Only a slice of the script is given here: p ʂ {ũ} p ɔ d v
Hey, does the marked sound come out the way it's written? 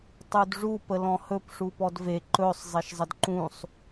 no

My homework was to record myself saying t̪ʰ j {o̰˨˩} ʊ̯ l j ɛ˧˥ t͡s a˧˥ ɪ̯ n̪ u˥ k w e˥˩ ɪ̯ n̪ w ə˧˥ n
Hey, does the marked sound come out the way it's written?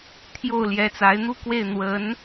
no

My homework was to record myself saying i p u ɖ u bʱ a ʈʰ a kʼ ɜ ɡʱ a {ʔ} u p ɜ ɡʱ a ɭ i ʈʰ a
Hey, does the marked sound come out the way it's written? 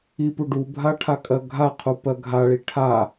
no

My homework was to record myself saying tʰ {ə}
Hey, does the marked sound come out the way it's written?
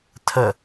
yes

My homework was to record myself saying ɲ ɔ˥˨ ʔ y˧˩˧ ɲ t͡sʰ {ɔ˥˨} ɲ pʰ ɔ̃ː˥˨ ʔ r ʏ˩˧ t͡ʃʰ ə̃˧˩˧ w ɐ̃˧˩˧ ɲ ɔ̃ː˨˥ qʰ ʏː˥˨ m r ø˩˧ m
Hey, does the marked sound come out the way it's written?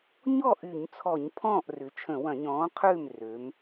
no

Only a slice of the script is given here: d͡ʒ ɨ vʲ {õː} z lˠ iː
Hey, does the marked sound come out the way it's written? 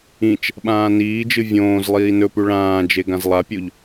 yes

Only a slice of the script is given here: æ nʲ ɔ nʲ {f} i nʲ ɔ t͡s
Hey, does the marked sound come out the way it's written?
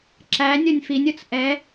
yes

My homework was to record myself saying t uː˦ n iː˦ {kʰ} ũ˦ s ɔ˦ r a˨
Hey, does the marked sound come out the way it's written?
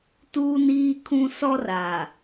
yes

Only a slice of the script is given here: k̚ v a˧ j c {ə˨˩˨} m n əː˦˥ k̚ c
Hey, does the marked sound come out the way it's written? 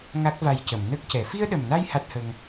yes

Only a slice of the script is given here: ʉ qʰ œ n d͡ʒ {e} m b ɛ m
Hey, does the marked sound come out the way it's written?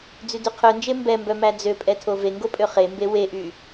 yes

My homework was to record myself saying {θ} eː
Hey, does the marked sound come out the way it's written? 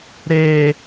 no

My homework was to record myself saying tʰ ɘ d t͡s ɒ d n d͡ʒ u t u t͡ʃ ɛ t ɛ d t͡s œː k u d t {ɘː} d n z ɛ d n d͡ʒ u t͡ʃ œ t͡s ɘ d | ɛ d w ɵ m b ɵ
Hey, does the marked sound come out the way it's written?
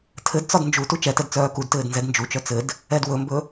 yes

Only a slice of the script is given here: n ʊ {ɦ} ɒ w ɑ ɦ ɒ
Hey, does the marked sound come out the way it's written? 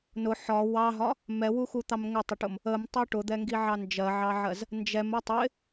no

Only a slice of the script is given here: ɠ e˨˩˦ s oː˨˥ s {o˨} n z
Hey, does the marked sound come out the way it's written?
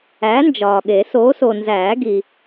yes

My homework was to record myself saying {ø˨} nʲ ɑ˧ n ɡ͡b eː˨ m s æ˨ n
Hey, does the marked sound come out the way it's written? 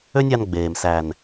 no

